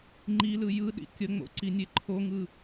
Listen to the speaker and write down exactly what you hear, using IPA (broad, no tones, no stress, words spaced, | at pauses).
ŋ͡ǃilɯ jɯɗḭ kʲəŋ͡mo̰ ǀinʲeǃʰoŋɯ